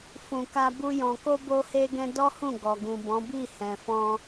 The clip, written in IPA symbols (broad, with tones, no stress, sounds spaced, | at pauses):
f ũ˨ k a˧ b u˧ j ɔ̃˨ k o˧ b o˧ h e˧ ɡ ɛ̃˧ d ɔ˦ h ũ˦˨ ɡ ɔ˨ ɡ ũ˨ b ɔ̃˨˦ b i˦˨ h ɛ̃˨ f ɔ̃˧